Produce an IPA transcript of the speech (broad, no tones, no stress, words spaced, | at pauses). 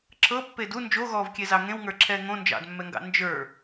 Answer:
ǁɤpːed u nd͡ʒoɣɔːvkʲezɑ ŋẽwŋə˞ǁʰɛː ŋõ nd͡ʒɑ̰dmːɛŋɡɑ̰ nd͡ʒə˞